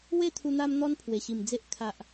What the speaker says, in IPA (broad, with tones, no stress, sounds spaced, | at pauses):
w e˥˧ t̪ʰ u˧ n̪ a˦ m n̪ ɔ˦ n pʰ w e˨˩ ɕ i˨˩ m d͡z e˦ ʔ kʰ a˨ ʔ